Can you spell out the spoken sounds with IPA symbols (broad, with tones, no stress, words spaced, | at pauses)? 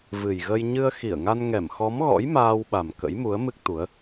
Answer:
vɨ˨˩jɣə˧j ɲɨ˧ə̯xi˧˩ə̯ŋa˧n ŋɛ˧˩mxɔ˨˦mɣɔ̰˧˥j maː˧wɓa˨˩m kə̰˧˥jmu˨˦ə̯mɨ˦˥k̚t̪u˨˦ə̯